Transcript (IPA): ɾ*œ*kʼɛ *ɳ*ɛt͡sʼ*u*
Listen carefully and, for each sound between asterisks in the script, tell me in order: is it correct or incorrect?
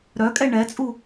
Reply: correct, correct, correct

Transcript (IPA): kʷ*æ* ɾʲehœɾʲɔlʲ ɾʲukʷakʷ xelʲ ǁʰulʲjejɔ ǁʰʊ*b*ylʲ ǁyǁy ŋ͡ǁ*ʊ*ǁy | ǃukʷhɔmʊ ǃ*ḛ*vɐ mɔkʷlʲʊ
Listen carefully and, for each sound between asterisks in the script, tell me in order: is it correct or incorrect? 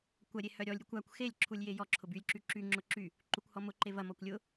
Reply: incorrect: ɐ, correct, correct, incorrect: e

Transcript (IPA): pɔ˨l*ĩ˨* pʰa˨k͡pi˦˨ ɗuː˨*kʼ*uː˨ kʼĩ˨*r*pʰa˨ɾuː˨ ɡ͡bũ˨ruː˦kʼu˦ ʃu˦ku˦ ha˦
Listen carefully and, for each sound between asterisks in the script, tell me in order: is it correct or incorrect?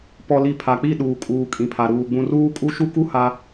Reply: incorrect: i˨, correct, incorrect: none

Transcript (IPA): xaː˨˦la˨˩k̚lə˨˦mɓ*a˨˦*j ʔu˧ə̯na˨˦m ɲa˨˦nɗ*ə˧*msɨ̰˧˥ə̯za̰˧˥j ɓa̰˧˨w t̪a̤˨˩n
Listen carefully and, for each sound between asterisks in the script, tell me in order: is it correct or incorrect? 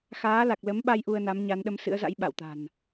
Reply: incorrect: a˧, correct

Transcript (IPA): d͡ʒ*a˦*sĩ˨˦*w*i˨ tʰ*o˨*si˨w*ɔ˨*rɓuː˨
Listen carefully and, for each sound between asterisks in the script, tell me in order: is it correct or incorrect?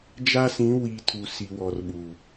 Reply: correct, correct, incorrect: u˨, correct

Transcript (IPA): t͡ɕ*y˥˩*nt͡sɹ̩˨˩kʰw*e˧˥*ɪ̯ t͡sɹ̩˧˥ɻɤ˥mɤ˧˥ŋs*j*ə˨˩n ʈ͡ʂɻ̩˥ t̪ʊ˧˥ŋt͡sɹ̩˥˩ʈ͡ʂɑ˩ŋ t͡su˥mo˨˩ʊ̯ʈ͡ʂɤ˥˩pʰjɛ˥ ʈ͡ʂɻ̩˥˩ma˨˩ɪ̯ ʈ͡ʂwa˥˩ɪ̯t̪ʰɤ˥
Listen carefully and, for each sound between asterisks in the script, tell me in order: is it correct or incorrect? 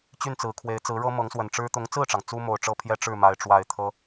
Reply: correct, correct, incorrect: w

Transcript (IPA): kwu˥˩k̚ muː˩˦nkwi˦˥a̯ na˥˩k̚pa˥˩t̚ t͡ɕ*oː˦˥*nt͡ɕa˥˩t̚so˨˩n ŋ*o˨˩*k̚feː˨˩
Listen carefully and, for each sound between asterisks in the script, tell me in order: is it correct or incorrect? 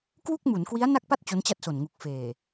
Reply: incorrect: o˦˥, incorrect: u˨˩

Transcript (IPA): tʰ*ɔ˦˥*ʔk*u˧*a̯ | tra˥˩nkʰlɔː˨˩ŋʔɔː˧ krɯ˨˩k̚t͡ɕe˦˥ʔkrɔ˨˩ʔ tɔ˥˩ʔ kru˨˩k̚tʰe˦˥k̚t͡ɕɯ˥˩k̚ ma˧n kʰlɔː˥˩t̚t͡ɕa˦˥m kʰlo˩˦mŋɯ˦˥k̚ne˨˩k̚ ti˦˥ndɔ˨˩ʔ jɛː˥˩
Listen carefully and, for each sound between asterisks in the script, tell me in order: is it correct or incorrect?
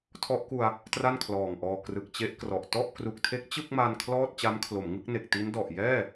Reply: correct, correct

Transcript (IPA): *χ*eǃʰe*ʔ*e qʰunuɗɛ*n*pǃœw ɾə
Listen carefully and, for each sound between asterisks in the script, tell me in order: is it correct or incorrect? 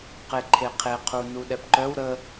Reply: incorrect: q, incorrect: qʰ, incorrect: none

